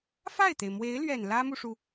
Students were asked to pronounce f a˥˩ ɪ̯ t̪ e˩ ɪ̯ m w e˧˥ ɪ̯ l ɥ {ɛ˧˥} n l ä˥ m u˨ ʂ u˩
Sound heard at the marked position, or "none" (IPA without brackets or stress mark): ɛ˨˩